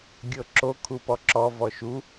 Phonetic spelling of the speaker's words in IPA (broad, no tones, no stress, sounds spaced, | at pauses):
ɡʲ ɤ ǁ o kʰ u p ɔ ǁ ɔ v ɔ ʃ u